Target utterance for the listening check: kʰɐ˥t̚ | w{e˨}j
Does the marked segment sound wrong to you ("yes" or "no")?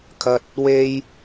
yes